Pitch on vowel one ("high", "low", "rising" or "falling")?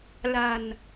low